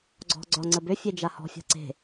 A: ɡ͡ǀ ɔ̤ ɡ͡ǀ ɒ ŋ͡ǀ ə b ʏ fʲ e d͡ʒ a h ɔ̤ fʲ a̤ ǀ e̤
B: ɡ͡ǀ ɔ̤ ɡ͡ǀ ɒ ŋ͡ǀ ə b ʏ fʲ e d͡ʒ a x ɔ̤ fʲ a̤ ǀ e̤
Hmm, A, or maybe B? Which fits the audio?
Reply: A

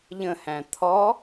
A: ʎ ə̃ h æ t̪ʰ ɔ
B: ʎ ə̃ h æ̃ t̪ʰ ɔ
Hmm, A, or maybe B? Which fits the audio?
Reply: B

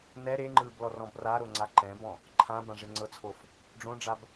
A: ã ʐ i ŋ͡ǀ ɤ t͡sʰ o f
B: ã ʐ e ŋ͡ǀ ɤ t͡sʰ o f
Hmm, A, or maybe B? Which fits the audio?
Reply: B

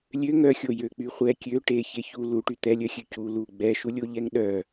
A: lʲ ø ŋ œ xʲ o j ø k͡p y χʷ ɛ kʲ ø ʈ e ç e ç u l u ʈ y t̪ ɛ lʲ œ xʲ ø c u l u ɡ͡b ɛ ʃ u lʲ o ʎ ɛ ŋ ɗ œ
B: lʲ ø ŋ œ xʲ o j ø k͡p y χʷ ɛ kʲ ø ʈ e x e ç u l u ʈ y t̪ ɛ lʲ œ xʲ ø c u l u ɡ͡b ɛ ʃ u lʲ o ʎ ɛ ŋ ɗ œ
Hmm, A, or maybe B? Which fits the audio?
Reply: A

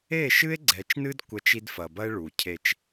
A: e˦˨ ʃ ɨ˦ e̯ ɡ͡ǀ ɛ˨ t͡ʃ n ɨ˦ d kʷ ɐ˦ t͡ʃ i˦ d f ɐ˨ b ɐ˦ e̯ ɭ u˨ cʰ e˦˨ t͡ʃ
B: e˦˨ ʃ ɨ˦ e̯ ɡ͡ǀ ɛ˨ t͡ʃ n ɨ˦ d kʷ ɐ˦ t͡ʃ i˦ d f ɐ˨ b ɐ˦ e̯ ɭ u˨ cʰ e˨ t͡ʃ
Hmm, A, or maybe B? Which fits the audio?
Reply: A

